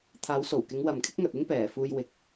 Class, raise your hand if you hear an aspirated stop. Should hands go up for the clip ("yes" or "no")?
yes